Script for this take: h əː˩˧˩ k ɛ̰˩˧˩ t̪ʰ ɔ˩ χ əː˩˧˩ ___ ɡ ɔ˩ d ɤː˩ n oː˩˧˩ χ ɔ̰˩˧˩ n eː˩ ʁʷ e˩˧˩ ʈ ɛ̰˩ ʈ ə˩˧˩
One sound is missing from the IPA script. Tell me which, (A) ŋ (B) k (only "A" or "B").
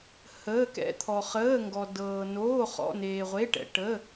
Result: A